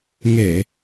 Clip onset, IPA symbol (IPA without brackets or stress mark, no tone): ŋ